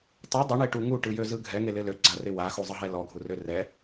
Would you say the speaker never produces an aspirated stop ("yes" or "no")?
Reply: yes